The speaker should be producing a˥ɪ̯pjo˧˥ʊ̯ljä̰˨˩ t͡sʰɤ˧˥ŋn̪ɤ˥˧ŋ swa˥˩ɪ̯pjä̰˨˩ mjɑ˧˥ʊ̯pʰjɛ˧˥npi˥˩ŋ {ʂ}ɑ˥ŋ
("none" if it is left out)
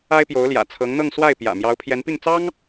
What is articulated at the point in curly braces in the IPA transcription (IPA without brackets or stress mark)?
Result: t͡s